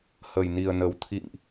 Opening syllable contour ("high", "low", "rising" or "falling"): low